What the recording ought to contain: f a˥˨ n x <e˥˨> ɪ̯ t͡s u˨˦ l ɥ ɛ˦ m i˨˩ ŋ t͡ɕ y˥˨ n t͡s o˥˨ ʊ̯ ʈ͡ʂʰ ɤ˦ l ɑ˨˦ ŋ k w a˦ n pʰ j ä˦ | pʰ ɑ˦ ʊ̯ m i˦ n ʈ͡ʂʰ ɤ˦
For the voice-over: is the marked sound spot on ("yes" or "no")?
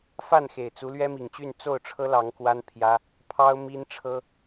no